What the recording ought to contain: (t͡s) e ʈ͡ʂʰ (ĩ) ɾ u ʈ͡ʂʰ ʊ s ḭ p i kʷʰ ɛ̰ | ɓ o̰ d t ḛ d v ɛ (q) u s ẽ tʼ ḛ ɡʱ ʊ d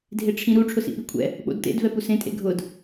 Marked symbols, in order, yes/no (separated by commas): no, yes, no